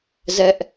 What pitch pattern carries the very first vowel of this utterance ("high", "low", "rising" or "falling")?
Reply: high